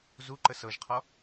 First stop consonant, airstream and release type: click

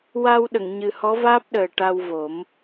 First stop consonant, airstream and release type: implosive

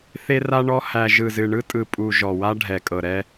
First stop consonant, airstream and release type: ejective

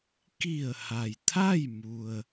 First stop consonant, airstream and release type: plain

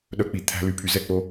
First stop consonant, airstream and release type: implosive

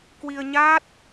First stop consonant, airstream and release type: plain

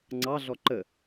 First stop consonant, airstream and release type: click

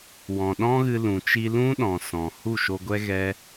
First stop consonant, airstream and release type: implosive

